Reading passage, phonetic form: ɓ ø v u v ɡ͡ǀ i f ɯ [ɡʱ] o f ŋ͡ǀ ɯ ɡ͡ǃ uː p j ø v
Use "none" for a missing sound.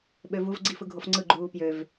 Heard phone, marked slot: ɡʱ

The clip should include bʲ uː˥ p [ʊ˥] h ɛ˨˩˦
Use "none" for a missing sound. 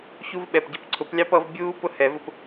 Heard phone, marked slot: ʊ˥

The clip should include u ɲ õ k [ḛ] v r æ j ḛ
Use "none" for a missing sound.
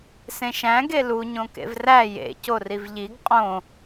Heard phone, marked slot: ḛ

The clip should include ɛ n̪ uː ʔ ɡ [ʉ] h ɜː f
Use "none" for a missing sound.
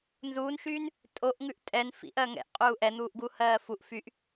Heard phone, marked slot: u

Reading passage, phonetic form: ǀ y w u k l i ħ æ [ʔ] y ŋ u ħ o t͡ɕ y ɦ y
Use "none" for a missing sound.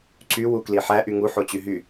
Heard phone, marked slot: ʔ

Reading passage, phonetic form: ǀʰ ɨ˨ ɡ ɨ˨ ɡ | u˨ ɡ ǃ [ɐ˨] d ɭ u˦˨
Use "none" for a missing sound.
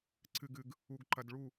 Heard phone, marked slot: ɐ˨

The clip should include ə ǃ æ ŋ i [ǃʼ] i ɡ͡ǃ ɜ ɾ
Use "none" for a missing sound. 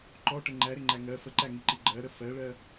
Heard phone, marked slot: ǃ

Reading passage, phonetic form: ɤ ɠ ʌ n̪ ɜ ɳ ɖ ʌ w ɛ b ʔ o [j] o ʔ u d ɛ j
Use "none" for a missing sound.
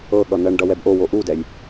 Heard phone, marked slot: w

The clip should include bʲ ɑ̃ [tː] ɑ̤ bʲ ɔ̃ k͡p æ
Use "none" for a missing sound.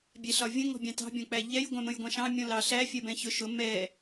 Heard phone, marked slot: t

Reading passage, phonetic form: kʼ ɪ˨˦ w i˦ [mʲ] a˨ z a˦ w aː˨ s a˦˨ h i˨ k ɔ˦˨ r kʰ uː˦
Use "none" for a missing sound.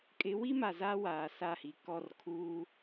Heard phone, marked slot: m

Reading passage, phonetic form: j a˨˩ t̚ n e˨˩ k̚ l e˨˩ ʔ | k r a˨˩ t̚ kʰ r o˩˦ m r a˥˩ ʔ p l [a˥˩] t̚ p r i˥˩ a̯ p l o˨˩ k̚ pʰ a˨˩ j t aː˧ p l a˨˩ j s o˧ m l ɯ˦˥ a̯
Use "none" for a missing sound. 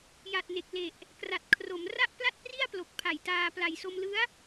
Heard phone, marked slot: a˥˩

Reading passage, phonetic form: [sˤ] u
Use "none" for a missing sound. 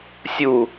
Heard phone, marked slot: sʲ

